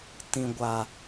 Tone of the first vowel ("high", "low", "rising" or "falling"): low